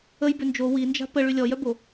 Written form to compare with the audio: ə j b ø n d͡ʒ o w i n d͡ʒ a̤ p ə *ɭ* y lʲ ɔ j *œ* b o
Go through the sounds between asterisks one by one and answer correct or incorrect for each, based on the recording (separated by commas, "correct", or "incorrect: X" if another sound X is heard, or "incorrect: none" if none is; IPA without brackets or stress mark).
correct, correct